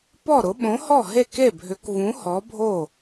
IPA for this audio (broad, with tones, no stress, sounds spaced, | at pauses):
p ɔ˥˩ ɾ ʊ˨˥ ɓ õ˨˥ h ɔ˥˩ ɦ e˥˩ k e˥˩ bʱ ʏ˨˥ k v ũ˨˥ h ɔ˨˥ bʱ o˥˩